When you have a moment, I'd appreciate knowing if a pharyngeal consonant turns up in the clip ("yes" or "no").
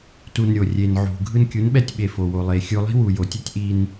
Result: yes